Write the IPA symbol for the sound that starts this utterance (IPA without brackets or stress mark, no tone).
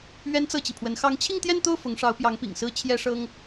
ɥ